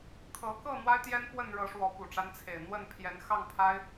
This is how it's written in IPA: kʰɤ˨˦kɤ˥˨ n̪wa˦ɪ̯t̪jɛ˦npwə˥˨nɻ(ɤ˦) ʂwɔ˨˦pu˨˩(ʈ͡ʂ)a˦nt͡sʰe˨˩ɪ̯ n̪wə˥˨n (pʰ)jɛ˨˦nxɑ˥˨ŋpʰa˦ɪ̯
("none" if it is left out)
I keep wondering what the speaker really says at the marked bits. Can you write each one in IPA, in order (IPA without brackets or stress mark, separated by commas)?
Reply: ɤ˨˦, ʈ͡ʂ, pʰ